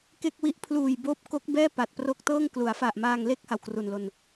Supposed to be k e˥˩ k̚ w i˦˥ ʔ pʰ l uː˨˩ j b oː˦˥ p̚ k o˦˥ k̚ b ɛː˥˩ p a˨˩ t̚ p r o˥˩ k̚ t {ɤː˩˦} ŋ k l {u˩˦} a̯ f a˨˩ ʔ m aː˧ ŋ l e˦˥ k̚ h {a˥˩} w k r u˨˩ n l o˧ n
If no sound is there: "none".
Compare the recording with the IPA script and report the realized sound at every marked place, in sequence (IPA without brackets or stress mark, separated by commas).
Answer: ɤː˥˩, u˩˦, a˧